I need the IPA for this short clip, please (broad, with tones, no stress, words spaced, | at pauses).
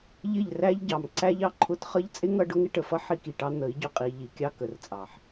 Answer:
ʎɪ˦˨ʎ ræ˦ʎɟɑ˨mǀæ˦ʎ ɑ˧ǃʰʊ˧tχʌ˦ʎ t͡sʼɪ˦ŋʌ˧ ɖʊ˦ŋɪ˦ʈə˨fʌ˦ ħi˦ki˨ʈɑ˦ n̪ə˨˦i̯ ɟʊ˧qʼi˧ ʎi˨kʲɑ˦ kə˨rt͡sʼɑ˨ħ